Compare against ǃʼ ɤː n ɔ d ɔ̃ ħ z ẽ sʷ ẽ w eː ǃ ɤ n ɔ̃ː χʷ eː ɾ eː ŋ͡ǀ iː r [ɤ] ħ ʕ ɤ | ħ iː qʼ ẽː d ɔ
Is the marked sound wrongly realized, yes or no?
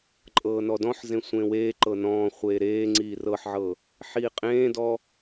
no